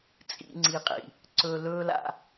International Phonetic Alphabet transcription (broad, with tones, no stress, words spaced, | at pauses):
t͡sʼḭ˦ŋ͡ǀi˧qʼḭ˨ | ǀɵ˧lɵ˦ la̰˦